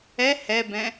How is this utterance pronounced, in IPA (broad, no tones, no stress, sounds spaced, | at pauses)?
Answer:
ɛ h ɛ b ɛ̃